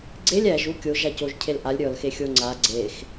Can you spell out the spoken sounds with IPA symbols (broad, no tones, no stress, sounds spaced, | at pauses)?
ɡ͡ǀ e lʲ æ ʒ u kʲ o ʒ a c o ʒ cʰ e l ʔ a lʲ ɾʲ ɔ l x e xʲ o ŋ͡ǀ a ɡ͡ǀ e x